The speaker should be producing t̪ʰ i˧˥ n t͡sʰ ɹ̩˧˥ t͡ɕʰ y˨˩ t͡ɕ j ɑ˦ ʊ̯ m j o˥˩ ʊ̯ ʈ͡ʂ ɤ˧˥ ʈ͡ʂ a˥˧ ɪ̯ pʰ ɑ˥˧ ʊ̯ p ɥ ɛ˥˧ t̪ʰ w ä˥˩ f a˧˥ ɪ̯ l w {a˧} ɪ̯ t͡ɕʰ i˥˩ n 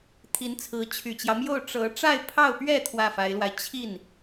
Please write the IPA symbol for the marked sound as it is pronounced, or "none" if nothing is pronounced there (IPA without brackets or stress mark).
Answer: a˧